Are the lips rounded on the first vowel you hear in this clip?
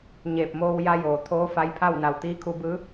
no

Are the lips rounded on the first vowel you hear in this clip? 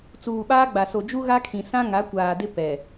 yes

